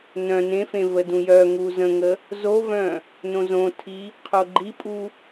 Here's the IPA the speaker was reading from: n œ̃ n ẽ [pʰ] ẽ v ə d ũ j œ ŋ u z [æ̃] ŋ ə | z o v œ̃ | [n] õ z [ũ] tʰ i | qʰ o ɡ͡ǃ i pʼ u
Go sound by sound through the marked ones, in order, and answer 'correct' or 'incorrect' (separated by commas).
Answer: incorrect, incorrect, correct, incorrect